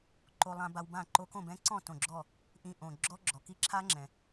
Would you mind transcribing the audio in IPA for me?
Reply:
ǃ o˧ lˠ ã˧ b a˧ w b ã˥˨ ǃ o˧ k õ˥˨ b ɛ̃˦˥ ǀ ɔ̃˥˨ t õ˧˩ ɡ͡ǁ ɔ˥˨ | ʔ ĩ˧ ʔ õ˩ ɡ͡ǁ ɔ˦˥ ɡ͡ǁ ɔ˩ k i˦˥ ǁʰ a˦˥ ŋ͡ǁ ɛ̃˩

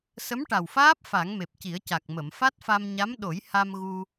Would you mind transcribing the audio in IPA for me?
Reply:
s ə˧˥ m ʈ a˨˩ w f aː˦˥ p̚ f a˨˩˦ ŋ m e˨˩ p̚ c i˨˩˦ ə̯ c a˨˩ k̚ m ə˨˩˨ m f a˦˥ t̚ f a˧ m ɲ a˧˥ m ɗ o˨˩˦ j h a˧ m ɣ u˧

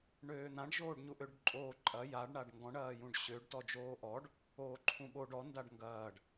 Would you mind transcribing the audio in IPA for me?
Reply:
ɳ øː n̪ ã ɖ ʒ oː ɖ ɲ u ʔ ø ɖ ǃʼ oː ǃʼ ɐ j a ɖ ɳ a ɖ ŋ ɡ ɔ̃ ɳ ɐː j ũ ɖ ɕ ø ɖ t ɔ d͡ʒ oː ʔ ɔ ɖ | oː ǃʰ ũ ɓ o ɖ ɔ n d a ɖ ŋ ɡ ɐː ɖ

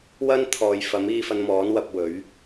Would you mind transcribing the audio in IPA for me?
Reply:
w ɐ˥ n t̪ʰ ɔː˨ j f ɐ˨˥ m iː˧ f ɐ˧ n m ɔː˨˥ n w ɐ˧ p̚ w ɵ˨˥ ɥ

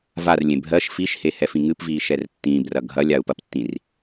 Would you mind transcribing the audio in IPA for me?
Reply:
v a r lʲ ẽ bʱ ɜ ʃ f i ʃ h e h ɛ f ĩ ŋ ɨ p v iː ʃ ɛ r tː ĩː b r ɐ ɡʱ ɐ lʲ a u̯ p ɐ p tː ĩ r

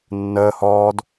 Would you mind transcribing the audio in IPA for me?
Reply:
nː əː h ɔː d

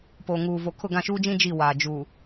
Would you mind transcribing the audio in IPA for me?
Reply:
p o˨ ŋ uː˨ v o˨ kʰ ʊ˦˨ ɡ ã˦˨ ʃ uː˦ d͡ʒ ĩ˦ d͡ʒ i˦˨ w aː˨ d͡ʒ u˨

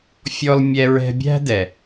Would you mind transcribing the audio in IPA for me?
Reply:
fʲ ɔ˧ l mʲ ɛ˧ ɹ ɛ̤˧ bʲ æ̤˦ d ɛ˨

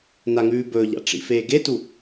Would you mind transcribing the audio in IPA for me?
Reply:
n a ŋ ʉː b ɵː ʎ a̰ ʈ͡ʂ ḭ f eː ɡ e t u

